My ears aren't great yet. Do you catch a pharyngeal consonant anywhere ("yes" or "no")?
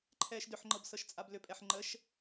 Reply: yes